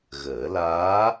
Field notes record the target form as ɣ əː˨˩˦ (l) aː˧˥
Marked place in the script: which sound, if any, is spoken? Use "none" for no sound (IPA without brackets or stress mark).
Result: l